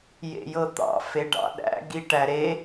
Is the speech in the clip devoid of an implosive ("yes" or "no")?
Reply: no